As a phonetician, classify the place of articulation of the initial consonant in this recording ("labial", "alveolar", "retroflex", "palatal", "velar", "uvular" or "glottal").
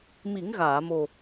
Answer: labial